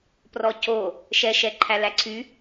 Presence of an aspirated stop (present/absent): present